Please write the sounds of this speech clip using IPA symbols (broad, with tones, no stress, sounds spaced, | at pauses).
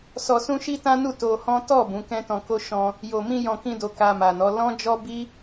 s ɔ˧ s ũ˦ ʃ i˦ t ã˦ n u˦˨ t o˧ h ɔ̃˦ t ɔ˦˨ b ũ˨˦ k ɛ̃˦ t ɔ̃˧ k o˦ ʃ ɔ̃˧ | j o˨ m ĩ˧ j ɔ̃˧ k ĩ˦ d o˧ k a˧ m a˨ n ɔ˨˦ l ɔ̃˦ d͡ʒ ɔ˦ b i˦